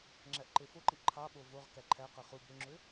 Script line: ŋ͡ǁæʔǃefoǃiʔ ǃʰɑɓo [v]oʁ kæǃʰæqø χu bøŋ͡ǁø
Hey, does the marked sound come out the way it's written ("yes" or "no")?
yes